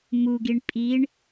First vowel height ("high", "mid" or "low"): high